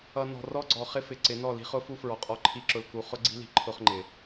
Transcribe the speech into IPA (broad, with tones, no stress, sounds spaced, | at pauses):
ʌ˨ n ɔ̤˨ r ɔ˦ ɡ͡ǀ ɔ˨ χ ɪ˦ f ɪ˨ ǀ ɪ˨˦ n ɔ˦˨ l i̤˦ χ ʊ˦ f u˦ f ɹ ɔ˨ qʼ ɔ˦ ǃʰ i˦ ǁ ʊ˨ l k u˨ χ ʊ˦ ɡ͡ǀ i̤˦ l i̤˨ ǃʰ ʊ˦ χ ŋ͡ǃ ɪ˨